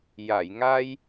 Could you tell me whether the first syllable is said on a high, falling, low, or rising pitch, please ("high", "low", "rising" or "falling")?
low